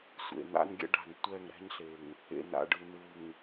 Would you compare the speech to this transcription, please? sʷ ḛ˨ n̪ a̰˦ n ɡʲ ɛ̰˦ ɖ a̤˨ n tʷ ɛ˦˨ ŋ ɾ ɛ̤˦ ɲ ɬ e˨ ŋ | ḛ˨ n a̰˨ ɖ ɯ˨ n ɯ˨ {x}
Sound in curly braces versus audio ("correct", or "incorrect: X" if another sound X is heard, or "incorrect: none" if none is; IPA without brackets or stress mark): incorrect: ŋ